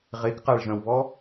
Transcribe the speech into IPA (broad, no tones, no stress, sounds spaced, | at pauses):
ʁ e k q a ɭ ʒ œ̃ w β ɔ